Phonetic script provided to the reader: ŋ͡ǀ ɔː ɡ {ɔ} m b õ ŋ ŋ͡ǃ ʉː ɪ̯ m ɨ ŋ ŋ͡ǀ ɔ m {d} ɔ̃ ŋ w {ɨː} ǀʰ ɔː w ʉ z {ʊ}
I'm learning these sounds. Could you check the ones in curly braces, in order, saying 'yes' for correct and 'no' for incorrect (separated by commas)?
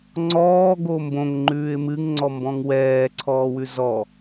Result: no, no, no, no